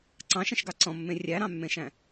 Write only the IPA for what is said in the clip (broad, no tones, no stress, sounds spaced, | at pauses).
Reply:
ǀ ɑ̃ ʃ ə̃ ʃ ɡ ɑ ǀ ɔ̃ mː ẽ rʲ æ ɾ ɑ̃ mː ẽ ʃ æ̃